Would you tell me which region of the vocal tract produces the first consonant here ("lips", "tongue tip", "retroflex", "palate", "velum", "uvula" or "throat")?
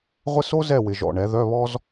uvula